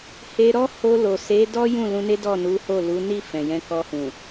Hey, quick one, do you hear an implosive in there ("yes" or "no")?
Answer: no